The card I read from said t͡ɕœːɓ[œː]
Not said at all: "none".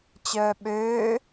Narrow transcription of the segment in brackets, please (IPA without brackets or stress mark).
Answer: øː